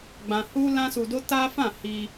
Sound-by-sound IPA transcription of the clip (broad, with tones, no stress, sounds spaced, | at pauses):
ɡ͡b ã˧ h u˦ l ã˦ s u˧ d o˦ t a˦ f ã˦˨ h i˧